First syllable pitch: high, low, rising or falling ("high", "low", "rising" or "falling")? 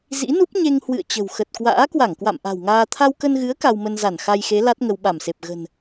rising